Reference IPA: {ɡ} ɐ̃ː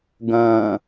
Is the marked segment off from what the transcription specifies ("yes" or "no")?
no